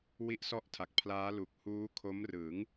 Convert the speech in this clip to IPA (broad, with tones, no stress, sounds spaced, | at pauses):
w i˦˥ ʔ s ɔ˥˩ ʔ tʰ a˨˩ k̚ pʰ l aː˦˥ l u˨˩ k̚ h uː˦˥ kʰ o˦˥ m r ɯ˩˦ ŋ